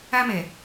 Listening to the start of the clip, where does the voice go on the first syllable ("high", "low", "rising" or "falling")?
high